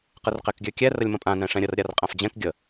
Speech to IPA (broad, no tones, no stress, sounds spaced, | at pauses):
q ə r q ɛ k ɡʲ ø kʲ ɛ r ə lʲ m ə̃ pʼ ã n ɛ̃ ʂ ɛ̃ ɾʲ ə r ɾʲ a r qʼ ã f d͡ʑ ɛ̃ k ɡʲ ə